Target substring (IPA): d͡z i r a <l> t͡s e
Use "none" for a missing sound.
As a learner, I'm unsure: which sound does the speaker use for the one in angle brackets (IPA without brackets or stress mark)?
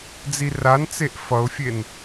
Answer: n